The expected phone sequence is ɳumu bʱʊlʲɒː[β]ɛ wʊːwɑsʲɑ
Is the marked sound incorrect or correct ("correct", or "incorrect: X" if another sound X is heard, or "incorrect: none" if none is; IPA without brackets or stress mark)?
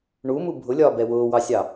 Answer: incorrect: b